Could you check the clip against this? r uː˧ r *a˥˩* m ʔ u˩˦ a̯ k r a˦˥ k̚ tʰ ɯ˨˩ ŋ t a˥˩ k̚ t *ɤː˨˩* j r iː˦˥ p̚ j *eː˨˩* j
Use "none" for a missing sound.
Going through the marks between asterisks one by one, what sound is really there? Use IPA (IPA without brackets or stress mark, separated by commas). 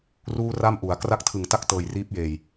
a˥˩, ɤː˨˩, eː˨˩